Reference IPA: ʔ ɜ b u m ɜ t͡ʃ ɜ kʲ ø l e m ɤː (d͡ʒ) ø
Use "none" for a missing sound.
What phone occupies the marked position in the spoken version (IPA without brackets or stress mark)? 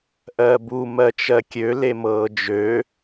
d͡ʒ